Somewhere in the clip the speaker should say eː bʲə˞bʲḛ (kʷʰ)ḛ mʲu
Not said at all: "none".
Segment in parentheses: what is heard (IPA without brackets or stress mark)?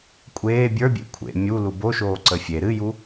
kʷʰ